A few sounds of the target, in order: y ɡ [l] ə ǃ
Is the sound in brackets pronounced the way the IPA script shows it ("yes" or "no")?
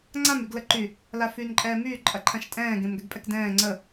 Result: yes